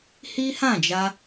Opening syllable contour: high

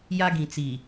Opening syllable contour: high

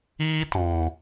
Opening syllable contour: high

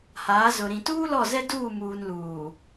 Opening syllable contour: rising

